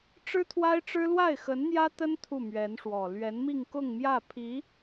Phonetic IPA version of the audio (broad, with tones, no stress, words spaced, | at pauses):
ʈ͡ʂɻ̩˥t̪ʰwa˥ɪ̯ʈ͡ʂɻ̩˥ lwa˥˩ɪ̯xə˧˥nn̪jä˥t̪ə˥n t̪ʰu˥˩mɥɛ˧˥nʂwɔ˨˩ lɥɛ˧˥nmi˥˧ŋkʊ˥˧ŋ mjä˥˩pʰi˧˥